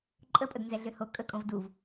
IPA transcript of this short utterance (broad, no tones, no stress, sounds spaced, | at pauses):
ǃʼ ə pʼ ə d n z ɛ ɮ ø h o kʼ ə kʼ õ v d u v